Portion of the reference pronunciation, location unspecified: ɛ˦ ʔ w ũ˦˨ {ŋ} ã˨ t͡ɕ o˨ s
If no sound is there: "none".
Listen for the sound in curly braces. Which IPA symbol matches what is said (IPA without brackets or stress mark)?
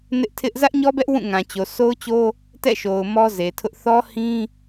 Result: ŋ